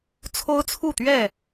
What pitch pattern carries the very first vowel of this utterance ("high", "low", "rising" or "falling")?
high